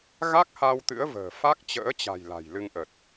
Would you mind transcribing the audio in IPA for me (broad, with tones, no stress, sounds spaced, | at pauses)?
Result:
ɣ a˦˥ k̚ h a˧ w t̪ ɨ̰˧˥ ə̯ v ə̤ː˨˩ f a˦˥ k̚ t͡ɕ ə̰ː˧˥ t͡ɕ a̤˨˩ j l a̤˨˩ j l ɨ˧ ŋ ʔ ə˨˩ t̚